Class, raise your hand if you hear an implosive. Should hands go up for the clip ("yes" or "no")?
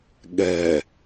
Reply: yes